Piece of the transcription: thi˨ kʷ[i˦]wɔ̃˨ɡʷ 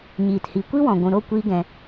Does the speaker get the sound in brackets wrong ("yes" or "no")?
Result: no